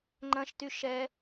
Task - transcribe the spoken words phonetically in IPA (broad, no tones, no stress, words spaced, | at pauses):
ŋ͡ǃɐ̃ʃty ʃɛ